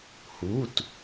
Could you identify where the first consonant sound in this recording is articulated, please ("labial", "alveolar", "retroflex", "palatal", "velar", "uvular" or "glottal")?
glottal